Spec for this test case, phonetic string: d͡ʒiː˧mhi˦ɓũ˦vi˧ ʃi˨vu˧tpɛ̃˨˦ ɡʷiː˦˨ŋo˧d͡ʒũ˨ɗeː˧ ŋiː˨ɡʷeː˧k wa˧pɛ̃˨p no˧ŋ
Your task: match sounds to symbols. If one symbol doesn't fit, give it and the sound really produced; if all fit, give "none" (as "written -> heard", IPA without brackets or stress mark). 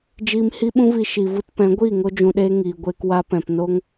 none